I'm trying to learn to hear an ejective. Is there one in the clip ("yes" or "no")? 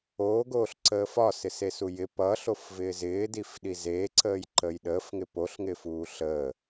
no